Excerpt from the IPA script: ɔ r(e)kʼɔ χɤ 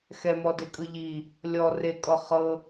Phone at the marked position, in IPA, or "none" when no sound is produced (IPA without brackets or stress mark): e